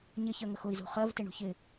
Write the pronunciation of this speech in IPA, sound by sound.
ɲ ɪ ç ɜ ŋ ə x ʊ i̯ z ṳ χ ɜ v t ɪ ɳ ṳ ç ɪ

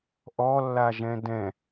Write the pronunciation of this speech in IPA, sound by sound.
ʔ ɔ lː a ʒ ɛ̃ d ɛ̃

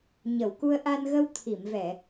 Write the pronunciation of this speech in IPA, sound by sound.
ɲ ə˨˩˨ w k u˧ ə̯ ʔ a˧ n ɣ ə˧ w t̪ʰ i˨˩˨ m v ɛ˨˩˨

